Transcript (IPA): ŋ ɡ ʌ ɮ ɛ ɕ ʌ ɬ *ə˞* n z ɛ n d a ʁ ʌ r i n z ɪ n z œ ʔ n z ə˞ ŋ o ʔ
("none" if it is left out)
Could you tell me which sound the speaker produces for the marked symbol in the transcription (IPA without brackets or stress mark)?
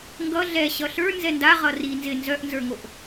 ə˞